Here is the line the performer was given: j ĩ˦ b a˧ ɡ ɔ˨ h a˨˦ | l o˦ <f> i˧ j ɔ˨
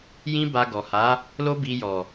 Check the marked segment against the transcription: incorrect: b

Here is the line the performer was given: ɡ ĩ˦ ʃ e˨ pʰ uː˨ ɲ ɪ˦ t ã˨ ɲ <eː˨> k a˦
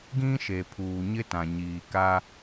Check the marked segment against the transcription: incorrect: iː˨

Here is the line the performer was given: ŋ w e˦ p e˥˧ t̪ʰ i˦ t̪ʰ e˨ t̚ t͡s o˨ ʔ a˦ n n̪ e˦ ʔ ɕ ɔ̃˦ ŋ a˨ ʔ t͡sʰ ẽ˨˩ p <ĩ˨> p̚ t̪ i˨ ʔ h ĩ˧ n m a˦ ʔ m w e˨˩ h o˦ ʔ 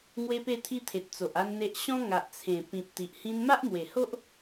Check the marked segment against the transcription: correct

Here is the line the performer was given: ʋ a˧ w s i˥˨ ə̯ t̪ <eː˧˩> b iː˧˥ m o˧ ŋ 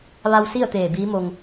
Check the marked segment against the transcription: correct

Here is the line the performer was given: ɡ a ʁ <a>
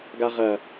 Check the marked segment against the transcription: incorrect: ɐ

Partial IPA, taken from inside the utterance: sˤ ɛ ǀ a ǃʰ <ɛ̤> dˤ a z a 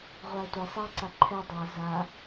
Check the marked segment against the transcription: incorrect: ɛ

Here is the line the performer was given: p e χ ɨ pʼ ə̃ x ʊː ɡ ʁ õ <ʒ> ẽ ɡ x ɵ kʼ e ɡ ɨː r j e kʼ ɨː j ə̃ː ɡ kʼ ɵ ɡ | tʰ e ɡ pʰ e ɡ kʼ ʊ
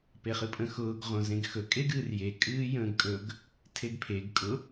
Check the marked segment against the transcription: incorrect: z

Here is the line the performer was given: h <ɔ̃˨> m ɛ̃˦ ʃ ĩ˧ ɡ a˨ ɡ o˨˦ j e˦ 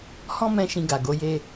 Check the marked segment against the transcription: incorrect: ɔ̃˦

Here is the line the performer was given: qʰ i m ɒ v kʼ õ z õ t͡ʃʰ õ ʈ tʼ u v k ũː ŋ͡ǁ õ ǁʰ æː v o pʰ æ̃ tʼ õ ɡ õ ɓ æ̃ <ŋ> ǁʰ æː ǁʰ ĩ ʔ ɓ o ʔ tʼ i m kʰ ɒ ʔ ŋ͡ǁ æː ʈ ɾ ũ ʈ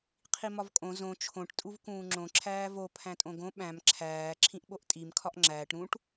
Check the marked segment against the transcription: incorrect: m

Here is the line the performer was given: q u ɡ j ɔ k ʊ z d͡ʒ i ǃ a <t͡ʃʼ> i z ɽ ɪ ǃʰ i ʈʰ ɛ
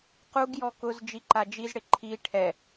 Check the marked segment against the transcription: incorrect: d͡ʒ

